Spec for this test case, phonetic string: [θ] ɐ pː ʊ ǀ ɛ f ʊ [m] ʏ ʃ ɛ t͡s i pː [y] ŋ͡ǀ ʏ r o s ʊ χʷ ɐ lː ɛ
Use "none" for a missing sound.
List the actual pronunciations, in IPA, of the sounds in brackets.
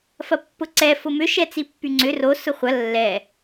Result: f, m, y

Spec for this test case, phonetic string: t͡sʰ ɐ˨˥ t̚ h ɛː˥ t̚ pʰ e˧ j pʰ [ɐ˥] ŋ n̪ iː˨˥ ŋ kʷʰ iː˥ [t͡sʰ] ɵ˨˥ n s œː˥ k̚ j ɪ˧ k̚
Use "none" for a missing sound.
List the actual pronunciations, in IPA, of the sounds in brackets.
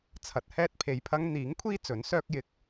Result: ɐ˥, t͡s

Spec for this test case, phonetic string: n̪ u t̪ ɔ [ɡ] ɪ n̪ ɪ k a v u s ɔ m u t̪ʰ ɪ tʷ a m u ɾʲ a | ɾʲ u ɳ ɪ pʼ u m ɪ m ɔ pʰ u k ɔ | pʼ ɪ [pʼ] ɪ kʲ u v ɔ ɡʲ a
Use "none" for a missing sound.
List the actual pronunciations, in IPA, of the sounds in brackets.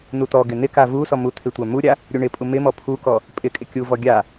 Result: ɡ, kʼ

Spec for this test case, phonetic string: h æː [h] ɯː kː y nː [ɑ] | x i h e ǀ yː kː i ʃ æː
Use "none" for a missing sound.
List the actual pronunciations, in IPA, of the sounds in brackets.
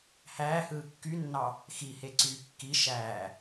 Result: h, ɑ

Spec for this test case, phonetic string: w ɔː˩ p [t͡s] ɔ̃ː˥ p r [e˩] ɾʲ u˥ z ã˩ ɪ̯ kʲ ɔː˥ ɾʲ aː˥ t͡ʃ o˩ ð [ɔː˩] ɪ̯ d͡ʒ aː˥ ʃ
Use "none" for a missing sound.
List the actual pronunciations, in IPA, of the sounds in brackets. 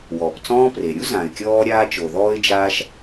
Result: t͡s, e˩, ɔː˥

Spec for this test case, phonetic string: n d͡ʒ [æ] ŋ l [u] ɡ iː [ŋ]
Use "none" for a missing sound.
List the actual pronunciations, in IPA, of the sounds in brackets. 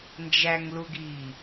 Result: æ, u, none

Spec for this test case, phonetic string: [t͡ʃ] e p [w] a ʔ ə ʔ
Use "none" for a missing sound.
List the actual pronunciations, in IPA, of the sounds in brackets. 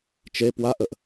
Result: t͡ʃ, w

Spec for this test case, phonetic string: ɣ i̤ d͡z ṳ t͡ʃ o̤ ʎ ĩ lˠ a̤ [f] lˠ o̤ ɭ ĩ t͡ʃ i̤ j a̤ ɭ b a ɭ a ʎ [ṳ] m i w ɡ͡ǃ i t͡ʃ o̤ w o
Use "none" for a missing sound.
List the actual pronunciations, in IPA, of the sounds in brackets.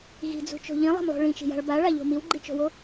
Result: m, o̤

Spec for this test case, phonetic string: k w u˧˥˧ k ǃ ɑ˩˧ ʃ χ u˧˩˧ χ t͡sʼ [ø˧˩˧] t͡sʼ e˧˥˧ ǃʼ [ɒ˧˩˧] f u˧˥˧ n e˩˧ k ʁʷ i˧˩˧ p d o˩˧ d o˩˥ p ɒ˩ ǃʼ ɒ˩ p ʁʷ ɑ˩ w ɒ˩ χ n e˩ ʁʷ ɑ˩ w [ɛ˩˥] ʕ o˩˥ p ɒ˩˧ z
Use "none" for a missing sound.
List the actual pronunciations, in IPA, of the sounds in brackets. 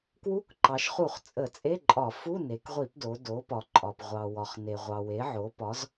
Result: ə˧˩˧, ɒ˧˩˧, e˩˥

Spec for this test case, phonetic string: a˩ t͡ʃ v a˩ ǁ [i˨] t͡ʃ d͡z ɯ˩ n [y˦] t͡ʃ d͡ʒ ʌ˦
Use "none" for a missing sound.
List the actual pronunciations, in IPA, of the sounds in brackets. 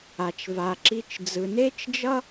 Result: i˨, e˦

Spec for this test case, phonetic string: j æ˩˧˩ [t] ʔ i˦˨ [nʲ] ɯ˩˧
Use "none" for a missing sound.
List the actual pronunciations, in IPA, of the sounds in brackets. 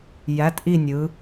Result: t, nʲ

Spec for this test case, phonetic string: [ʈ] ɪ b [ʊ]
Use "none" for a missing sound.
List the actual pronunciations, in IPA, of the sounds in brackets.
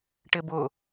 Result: ʈ, ʊ

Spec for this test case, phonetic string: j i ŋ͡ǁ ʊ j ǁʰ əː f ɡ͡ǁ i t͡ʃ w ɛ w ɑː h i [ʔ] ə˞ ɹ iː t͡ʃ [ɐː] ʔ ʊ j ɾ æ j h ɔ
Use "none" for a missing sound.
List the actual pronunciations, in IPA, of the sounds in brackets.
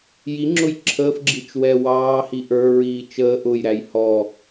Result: ʔ, əː

